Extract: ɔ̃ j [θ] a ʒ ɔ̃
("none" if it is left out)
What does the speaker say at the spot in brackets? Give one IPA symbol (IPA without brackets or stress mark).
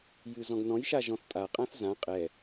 ʃ